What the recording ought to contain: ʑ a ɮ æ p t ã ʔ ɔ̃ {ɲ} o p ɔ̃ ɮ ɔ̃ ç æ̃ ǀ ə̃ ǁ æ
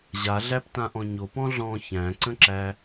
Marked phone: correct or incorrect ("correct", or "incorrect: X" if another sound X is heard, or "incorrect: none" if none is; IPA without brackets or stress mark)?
correct